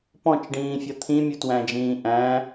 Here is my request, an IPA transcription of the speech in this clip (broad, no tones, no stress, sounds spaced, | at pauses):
p ɔ̃ t͡ʃ ɖ ĩː fʲ ʌ t̪ʰ ĩ mʲ u t w æ̃ d͡ʒ ĩː ʔ æ̃